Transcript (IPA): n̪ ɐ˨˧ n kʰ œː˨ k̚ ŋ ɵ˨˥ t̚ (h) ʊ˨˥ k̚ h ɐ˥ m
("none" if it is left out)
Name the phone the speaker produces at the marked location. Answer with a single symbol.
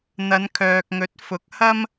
f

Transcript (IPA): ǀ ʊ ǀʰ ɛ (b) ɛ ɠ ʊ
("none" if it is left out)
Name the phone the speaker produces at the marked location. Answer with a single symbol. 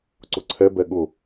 b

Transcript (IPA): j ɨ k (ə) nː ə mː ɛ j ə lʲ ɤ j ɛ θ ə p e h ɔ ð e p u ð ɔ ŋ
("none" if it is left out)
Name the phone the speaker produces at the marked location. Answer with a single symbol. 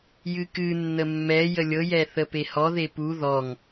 ɨ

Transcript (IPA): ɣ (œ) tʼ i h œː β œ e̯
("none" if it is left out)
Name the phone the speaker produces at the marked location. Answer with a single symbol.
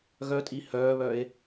œ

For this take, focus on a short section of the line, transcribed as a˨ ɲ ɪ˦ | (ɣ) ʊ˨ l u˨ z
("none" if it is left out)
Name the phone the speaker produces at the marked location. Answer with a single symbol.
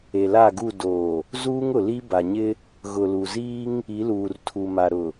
ɣ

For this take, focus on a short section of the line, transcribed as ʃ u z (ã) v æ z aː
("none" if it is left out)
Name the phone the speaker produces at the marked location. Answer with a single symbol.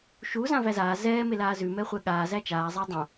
ã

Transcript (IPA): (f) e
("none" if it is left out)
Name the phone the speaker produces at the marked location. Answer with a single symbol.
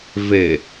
v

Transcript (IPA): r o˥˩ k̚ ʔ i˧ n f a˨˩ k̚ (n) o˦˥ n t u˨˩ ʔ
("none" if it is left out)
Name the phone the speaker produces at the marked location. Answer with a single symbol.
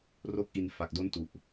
d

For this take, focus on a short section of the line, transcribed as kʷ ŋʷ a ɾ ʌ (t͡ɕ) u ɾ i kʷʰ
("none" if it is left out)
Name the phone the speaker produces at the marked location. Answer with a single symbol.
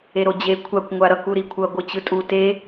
k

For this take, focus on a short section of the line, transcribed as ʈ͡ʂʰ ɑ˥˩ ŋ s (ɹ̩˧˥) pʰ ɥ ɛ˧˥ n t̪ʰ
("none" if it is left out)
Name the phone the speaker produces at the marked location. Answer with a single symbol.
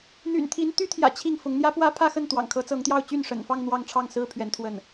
ɹ̩˥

